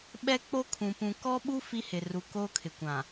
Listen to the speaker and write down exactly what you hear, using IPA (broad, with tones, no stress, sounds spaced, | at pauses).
ɓ ɛ˦ k͡p o˦ kʰ ũ˨ p ũ˨ k ɔ˦ ɓ u˦ f i˦ h ɪ˨ r u˨ k oː˦ kʰ ɪ˨ kʷ ã˨